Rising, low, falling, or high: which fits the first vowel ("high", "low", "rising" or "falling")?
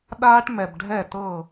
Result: high